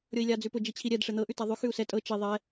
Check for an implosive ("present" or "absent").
absent